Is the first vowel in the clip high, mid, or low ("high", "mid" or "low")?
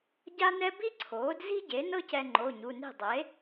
low